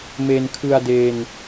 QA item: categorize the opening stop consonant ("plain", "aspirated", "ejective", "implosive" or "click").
aspirated